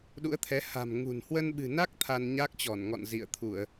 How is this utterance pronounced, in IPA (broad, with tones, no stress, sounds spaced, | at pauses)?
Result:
ɗ ṵ˧˥ ə̯ t̪ʰ ɛ˨˦ h a̤˨˩ m ŋ ṳ˨˩ n h w ə˧ n ɓ ɨ̤˨˩ n a˦˥ k̚ t̪ʰ a˧ n ɲ a˦˥ k̚ t͡ɕ ɔ˧˩ n ŋ ɔ̰˧˨ n z ḭ˧˨ ə̯ t̪ʰ u˧˩˨ ə̯